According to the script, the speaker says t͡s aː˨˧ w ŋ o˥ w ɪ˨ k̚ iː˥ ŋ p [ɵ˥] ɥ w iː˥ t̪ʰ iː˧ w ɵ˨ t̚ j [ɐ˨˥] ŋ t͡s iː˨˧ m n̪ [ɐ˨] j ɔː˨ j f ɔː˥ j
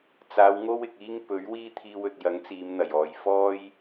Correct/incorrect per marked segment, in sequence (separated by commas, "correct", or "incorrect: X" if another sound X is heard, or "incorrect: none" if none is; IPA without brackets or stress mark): incorrect: ɵ˨˥, correct, incorrect: ɐ˨˩